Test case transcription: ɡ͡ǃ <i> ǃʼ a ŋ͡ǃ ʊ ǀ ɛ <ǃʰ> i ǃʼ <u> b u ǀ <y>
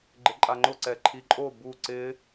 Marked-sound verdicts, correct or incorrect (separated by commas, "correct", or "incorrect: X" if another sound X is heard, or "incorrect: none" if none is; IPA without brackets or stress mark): incorrect: ɪ, correct, incorrect: o, incorrect: ɪ